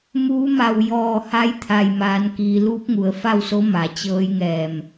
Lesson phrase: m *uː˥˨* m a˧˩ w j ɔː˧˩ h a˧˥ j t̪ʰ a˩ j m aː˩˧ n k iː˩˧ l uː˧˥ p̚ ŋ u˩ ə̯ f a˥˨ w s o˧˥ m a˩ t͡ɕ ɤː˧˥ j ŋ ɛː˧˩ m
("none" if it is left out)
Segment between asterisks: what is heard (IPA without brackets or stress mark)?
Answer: uː˧˥